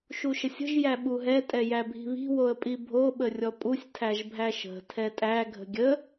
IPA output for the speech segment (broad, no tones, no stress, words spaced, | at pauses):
ʃuʃəsʲə̤ʒ jæɓuɦɛ tʼɛjæbʱi̤βi̤ woə̯pʼibʱo ɓərʲɔpʼusʲ tʰæʒbʱæʃə̤ tʰɛtʼæ ɡʱə̤ɡʲə